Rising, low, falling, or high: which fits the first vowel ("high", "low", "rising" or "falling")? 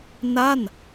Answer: falling